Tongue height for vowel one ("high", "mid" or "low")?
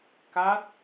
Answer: low